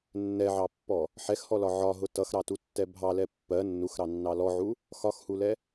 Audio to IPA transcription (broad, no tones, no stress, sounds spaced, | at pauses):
nː ɛ ʕ ɑ pː ɔ | ħ ɛ x h ɔ l ɒ ʕ ɒ ɦ ʊ t ʌ x ɾ ɑ t u tː ɛ bʱ ɑ l ɛ pː ɜ nː u x ɾ ɑ nː ɑ l ɔ ʕ u | x ɒ x h u l ɛ